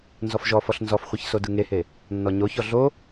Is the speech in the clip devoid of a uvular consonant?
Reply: no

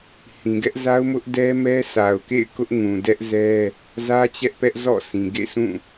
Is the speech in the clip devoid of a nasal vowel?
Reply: no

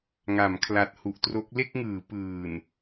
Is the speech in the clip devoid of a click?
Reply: yes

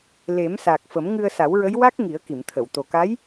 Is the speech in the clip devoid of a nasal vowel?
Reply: yes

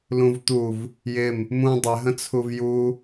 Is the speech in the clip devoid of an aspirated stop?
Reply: no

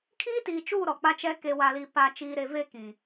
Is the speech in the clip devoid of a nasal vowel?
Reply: no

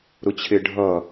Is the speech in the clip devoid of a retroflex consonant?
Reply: no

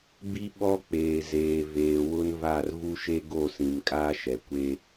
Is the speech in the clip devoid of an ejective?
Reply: no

